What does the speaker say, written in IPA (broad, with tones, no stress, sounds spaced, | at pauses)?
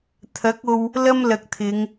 t̪ʰ ɐ˨˥ k̚ o˧ w | l ɐ˥ m l ɐ˧ k̚ t̪ʰ ɪ˨˧ ŋ